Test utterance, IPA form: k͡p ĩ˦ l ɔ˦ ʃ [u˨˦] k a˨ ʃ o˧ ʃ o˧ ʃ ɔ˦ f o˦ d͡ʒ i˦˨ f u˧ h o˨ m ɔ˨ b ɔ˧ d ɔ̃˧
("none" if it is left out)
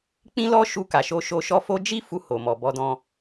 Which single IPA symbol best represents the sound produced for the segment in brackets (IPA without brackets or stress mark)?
u˧